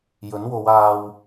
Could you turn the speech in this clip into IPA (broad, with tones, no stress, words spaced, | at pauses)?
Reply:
jɵ˨˥nwo˨˧w aː˧w